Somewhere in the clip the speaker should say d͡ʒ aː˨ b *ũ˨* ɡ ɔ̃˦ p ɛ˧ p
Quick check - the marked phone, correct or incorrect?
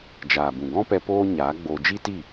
correct